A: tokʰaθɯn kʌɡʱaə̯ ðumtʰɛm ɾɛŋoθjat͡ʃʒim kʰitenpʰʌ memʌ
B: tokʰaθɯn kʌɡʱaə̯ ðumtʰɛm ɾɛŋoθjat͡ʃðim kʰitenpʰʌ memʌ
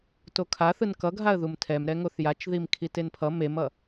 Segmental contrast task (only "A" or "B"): B